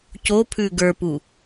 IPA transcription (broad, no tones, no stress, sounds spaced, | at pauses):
c o pʰ ʉ ɡ ə˞ p u